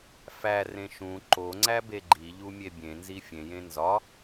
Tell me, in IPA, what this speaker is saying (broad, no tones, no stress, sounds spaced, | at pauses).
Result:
f æ r ẽ ʃ ũ ǃ o ŋ͡ǀ æ b e ɡ͡ǃ i ʎ u mʲ e bʲ ẽ n z i fʲ ẽ j ẽ n z ɒ